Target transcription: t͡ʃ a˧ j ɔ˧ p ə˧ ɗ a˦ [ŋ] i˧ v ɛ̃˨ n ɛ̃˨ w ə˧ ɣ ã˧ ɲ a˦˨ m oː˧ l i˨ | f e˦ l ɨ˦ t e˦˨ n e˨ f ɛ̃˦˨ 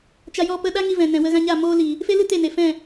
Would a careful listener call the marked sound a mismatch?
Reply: no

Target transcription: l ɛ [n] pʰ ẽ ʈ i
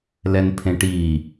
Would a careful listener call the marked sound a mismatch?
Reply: no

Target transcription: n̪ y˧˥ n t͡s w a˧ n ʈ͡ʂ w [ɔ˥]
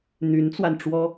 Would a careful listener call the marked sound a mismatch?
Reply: no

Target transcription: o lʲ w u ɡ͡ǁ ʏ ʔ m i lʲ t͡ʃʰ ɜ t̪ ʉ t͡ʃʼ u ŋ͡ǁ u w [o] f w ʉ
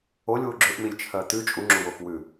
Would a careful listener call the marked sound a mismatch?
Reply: no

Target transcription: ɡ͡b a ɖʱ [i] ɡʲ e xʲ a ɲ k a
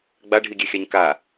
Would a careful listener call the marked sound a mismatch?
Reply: no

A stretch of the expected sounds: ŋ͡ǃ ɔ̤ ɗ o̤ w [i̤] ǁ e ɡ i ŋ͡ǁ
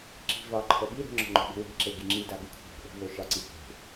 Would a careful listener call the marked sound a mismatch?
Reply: yes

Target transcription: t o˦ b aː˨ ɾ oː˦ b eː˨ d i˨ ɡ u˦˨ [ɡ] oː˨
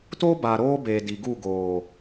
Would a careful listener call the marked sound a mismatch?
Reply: no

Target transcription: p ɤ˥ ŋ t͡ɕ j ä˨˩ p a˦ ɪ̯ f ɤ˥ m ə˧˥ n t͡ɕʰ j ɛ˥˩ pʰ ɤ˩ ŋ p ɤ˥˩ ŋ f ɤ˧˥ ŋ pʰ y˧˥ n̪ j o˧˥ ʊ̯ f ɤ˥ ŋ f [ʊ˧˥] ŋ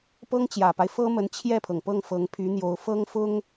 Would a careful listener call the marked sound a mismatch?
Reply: yes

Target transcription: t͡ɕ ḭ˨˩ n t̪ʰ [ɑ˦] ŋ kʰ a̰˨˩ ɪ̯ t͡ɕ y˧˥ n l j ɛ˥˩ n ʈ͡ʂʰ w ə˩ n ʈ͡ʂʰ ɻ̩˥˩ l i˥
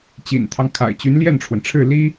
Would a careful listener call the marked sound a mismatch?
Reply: no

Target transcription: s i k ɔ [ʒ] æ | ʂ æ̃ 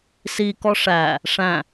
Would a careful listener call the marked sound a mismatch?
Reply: yes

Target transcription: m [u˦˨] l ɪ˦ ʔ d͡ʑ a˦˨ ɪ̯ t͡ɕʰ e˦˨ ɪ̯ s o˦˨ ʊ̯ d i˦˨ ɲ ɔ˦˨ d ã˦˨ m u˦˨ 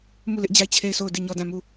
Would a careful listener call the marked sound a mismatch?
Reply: no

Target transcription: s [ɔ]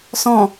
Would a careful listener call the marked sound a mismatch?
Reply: yes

